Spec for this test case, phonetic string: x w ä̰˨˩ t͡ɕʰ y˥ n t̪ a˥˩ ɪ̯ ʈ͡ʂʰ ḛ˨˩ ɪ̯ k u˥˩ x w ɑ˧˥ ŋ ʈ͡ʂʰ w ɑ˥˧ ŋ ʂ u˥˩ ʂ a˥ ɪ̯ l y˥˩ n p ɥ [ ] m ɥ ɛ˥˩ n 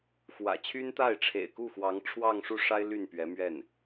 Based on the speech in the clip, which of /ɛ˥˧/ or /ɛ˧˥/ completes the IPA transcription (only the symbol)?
ɛ˧˥